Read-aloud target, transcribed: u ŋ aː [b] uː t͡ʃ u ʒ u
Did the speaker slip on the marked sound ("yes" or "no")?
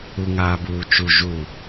no